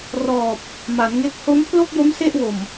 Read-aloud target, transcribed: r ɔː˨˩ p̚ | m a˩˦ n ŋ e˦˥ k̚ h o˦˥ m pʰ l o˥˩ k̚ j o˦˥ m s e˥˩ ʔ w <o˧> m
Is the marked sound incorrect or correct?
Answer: incorrect